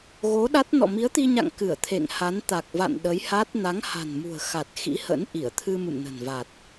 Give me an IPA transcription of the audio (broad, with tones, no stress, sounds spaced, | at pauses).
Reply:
ɣ o˨˦ ɗ a˦˥ t̚ n ɔ̰˧˨ m i˨˦ ə̯ t̪ i˧ ɲ a̰˧˨ ŋ k ɨ˧˩ ə̯ t̪ʰ ḛ˧˨ ŋ h a˨˦ n t̪ a˨˩ k̚ v a̰˧˨ n ɗ ə˨˦ j h a˦˥ t̚ n a˨˦ ŋ h a̤˨˩ n m ṳ˨˩ ə̯ x a˨˩ t̚ x ḭ˧˥ h ə̰˧˥ n ʔ i˧˩ ə̯ t̪ʰ ɨ˧ m ɨ̰˧˨ m n ə̤˨˩ n v a˨˩ t̚